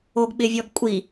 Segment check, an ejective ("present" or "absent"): present